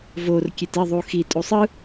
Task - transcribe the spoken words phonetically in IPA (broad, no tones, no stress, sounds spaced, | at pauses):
v o r kʲ e t ɪ ðˤ u x i tʼ u sˤ ɯ